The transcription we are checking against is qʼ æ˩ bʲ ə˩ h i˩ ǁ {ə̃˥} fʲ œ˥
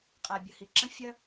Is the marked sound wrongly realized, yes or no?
no